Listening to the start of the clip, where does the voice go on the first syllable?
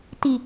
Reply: low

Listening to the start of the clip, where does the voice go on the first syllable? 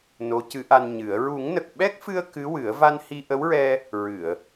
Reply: rising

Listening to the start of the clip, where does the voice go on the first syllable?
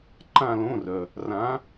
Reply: falling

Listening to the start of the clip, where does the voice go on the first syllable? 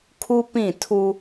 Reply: high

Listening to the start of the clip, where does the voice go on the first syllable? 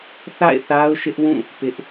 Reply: falling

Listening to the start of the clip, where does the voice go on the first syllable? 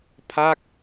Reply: falling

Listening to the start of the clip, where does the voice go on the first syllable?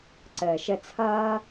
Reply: low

